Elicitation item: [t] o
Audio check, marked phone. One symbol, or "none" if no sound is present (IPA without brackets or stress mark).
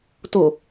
t